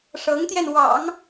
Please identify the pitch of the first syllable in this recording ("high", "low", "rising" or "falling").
rising